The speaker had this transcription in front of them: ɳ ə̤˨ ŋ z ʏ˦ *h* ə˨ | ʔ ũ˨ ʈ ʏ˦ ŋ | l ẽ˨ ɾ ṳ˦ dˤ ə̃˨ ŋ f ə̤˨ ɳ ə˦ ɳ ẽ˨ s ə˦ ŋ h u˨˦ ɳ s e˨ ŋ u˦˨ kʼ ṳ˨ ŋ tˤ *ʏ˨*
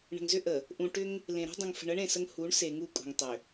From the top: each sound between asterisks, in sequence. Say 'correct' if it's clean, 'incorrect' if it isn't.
incorrect: ʔ, correct

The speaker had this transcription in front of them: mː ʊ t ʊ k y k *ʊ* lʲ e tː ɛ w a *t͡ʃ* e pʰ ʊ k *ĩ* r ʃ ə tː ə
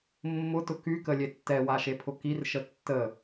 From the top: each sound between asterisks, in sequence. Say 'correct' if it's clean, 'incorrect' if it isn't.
incorrect: ə, incorrect: ʃ, incorrect: i

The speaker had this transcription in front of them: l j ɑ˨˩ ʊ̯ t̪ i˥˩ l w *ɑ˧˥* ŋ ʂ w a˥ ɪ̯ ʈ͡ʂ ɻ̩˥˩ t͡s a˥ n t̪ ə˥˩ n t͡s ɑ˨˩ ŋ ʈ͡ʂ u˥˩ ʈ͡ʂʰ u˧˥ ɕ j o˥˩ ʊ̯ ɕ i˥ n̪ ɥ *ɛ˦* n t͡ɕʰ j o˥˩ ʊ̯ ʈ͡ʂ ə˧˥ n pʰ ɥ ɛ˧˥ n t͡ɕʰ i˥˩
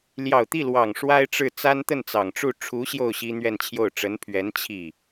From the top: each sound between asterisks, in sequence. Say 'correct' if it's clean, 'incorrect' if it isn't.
incorrect: ɑ˨˩, incorrect: ɛ˥˧

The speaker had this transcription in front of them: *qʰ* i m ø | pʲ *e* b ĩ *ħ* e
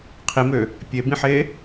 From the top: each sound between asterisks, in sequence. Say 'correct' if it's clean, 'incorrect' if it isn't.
correct, correct, correct

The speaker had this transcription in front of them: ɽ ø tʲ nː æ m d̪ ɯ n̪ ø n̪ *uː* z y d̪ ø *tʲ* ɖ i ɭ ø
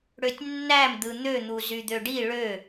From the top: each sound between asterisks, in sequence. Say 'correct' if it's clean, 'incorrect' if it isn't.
incorrect: u, incorrect: none

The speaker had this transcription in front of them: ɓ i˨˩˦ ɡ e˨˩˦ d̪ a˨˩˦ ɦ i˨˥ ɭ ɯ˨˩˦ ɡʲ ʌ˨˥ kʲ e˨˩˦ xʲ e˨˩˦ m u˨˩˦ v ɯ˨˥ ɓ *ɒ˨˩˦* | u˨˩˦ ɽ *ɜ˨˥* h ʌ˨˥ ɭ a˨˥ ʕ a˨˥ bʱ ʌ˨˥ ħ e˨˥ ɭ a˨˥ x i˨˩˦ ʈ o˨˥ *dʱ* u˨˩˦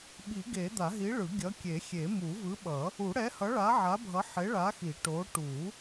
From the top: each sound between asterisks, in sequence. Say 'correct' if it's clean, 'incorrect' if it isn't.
incorrect: ʌ˨˩˦, incorrect: ɛ˨˥, incorrect: ʈ

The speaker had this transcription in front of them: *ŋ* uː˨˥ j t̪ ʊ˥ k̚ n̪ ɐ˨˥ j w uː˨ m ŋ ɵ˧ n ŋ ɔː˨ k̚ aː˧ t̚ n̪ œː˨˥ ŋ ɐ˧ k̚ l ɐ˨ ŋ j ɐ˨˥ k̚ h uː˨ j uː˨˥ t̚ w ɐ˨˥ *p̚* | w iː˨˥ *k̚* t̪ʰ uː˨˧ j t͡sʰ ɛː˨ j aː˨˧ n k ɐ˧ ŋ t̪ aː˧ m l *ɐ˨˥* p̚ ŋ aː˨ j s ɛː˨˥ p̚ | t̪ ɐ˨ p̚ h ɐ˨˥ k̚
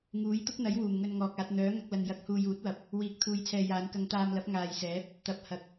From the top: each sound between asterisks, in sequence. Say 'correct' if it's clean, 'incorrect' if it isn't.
correct, correct, correct, correct

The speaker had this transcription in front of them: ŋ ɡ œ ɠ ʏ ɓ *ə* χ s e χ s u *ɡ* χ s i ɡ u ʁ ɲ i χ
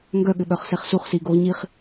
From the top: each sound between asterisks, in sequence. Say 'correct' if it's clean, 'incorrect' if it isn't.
incorrect: œ, incorrect: none

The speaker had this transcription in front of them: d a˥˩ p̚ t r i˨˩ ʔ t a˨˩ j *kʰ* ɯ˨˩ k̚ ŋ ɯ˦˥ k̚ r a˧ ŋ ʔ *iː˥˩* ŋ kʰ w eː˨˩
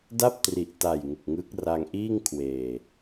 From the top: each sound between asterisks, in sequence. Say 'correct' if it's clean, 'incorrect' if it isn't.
incorrect: ŋ, correct

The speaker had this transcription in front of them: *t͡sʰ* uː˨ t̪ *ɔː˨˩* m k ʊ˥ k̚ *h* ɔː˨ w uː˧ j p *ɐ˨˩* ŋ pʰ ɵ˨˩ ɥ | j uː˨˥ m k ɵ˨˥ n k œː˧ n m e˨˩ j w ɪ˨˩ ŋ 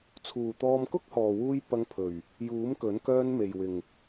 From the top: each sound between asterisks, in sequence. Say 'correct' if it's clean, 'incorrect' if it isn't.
correct, incorrect: ɔː˧, correct, incorrect: ɐ˧

